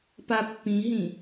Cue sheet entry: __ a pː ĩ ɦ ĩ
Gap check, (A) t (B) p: B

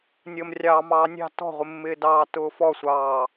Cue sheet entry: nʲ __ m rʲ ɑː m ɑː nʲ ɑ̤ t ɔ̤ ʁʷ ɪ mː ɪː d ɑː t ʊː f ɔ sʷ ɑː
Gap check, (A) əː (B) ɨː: A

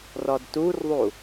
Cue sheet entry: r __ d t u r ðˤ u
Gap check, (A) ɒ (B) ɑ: A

